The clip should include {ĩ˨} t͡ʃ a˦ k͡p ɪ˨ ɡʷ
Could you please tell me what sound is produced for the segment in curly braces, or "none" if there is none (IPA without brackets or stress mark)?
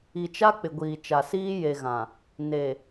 i˨